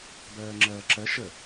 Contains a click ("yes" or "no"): yes